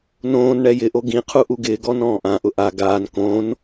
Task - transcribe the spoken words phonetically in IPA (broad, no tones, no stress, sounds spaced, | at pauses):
n õː n ɳ ɛ j ɪ ʔ o ɡ ĩ qʰ u ʔ u ɡ ɪː ɡ ɔ n ɔ̃ː ʔ ã ʔ ʊ ʔ a ɡ aː n k õ n